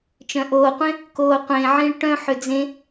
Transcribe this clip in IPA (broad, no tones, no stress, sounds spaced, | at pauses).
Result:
t͡ʃ œ̃ ʔ oː qʷ ẽ | k oː qʷ ẽ ʕ ĩ ɭ ʈ œ̃ ħ ʏ d͡z ẽ